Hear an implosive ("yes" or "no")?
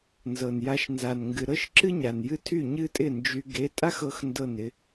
no